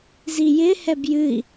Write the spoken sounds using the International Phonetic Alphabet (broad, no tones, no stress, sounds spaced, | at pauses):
z i j ɪ h ɛ b j ɨ i̯